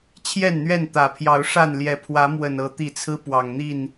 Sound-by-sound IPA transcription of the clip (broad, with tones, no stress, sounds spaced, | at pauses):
t͡ɕʰ j ɛ˥˨ n n̪ ɥ ɛ˥˨ n t̪ ä˨˩ pʰ j ɑ˨˦ ʊ̯ ʂ a˥˨ n l j ɛ˨˦ pʰ w ä˨˦ m w ə˨˩ n ɤ˨˦ t̪ i˨˩ t͡sʰ ɹ̩˦ p w ɑ˨˩ ŋ n̪ i˥˨ n